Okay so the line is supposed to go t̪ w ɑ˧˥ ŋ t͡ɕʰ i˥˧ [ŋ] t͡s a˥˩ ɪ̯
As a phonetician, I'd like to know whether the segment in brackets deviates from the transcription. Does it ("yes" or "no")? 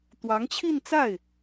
yes